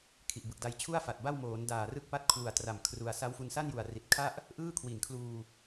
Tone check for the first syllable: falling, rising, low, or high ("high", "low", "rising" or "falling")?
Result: low